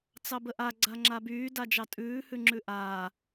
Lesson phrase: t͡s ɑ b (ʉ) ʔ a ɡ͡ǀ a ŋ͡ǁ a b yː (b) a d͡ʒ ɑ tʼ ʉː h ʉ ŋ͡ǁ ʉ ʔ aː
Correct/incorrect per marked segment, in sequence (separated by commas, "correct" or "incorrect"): incorrect, incorrect